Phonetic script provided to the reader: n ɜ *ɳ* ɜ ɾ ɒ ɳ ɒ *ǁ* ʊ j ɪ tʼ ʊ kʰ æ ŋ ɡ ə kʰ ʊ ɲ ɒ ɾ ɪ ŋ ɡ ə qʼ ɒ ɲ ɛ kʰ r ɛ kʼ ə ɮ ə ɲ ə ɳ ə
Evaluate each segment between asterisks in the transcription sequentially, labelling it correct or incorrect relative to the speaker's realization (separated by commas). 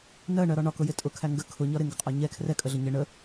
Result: correct, incorrect